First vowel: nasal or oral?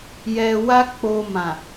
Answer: oral